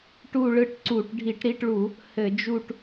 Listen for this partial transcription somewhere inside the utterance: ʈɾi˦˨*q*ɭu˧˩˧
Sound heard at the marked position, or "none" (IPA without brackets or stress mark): ʈ